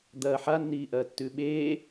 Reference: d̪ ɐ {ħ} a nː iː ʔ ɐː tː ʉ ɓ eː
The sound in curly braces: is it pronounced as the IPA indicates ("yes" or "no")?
yes